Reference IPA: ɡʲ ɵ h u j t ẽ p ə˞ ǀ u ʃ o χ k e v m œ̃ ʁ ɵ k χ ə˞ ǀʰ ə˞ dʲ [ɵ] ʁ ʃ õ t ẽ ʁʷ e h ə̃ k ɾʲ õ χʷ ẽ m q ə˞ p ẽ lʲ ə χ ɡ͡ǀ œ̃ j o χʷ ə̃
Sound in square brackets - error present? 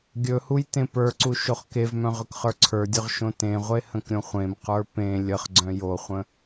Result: no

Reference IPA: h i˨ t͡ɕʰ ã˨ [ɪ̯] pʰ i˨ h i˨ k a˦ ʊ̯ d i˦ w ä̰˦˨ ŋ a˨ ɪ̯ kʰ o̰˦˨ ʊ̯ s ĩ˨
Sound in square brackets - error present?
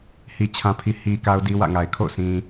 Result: yes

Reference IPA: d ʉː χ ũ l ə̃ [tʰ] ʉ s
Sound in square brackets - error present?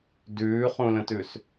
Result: yes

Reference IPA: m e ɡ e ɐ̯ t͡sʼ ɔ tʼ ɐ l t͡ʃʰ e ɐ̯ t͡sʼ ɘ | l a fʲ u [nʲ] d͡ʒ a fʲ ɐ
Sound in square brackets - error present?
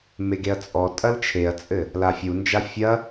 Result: yes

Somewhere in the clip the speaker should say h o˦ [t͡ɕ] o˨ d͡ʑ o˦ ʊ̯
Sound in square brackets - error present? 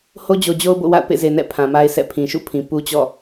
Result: yes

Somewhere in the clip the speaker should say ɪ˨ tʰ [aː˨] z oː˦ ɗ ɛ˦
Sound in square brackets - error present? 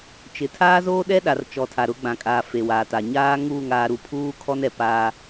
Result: yes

